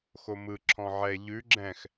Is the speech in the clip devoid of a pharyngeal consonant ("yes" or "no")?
no